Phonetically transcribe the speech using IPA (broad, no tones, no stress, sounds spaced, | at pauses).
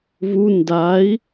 v u n d a i̯